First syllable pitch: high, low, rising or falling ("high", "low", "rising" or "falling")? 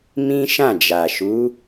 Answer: high